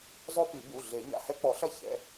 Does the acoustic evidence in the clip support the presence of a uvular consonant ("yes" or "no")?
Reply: no